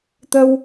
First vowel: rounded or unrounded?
unrounded